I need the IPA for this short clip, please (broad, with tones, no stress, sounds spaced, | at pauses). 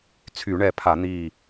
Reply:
t͡sʰ y˧˩˧ ɳ ɛ˧˩ pʰ a˧˩˧ n̪ iː˧˩